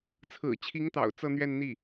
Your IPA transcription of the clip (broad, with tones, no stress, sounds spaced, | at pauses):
t͡sʰ ɹ̩˨˩ t͡ɕʰ i˧˥ ŋ t̪ ɑ̰˨˩ ʊ̯ t͡s ɤ˥˧ n̪ ɥ ɛ˥˧ n n̪ i˥˩